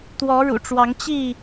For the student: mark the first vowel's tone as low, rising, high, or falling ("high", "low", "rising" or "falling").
rising